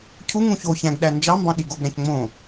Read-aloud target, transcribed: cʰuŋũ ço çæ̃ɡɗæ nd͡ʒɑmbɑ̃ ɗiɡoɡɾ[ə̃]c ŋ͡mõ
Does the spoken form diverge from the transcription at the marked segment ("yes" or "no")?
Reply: yes